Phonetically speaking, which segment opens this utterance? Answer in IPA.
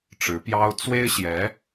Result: ʈ͡ʂ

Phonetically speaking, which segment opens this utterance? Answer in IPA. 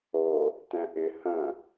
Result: o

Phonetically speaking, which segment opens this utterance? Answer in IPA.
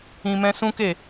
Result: ĩ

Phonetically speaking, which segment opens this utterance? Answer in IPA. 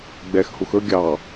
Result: ɡ͡b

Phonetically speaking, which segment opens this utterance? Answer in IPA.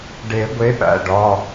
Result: ɖ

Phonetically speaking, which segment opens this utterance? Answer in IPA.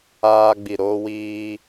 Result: aː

